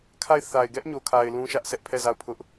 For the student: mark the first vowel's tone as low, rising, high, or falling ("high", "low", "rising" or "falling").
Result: falling